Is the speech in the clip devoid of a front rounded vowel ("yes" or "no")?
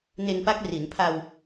yes